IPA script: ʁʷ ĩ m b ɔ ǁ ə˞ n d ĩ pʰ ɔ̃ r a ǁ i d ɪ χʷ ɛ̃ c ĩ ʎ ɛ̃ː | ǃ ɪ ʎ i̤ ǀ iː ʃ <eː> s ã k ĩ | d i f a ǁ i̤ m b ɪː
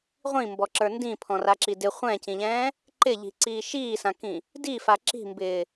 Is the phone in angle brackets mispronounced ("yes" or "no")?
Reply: yes